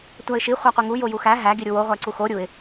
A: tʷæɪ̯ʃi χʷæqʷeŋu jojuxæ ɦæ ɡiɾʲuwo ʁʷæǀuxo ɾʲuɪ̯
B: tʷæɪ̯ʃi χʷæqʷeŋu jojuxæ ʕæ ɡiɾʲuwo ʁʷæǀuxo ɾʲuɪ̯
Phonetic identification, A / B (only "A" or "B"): A